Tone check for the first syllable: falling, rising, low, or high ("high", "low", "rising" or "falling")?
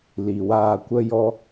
low